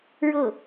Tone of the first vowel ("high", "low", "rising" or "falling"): falling